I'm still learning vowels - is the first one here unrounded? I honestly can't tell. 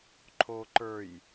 no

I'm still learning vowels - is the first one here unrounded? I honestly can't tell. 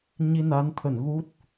yes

